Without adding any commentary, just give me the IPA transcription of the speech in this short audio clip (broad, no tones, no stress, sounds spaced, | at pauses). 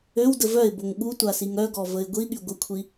ø w d ə v œ ɪ̯ b o ŋ ɠ u tʷ a s i ŋ œ ɡ ɔ v ə ɪ̯ ɡʷ i ɠ y ɡʷ ə kʷʰ i